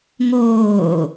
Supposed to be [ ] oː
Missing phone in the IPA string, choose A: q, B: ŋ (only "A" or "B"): B